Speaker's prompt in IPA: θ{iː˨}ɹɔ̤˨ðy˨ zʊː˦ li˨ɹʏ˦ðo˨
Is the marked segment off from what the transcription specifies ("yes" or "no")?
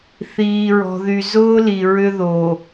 no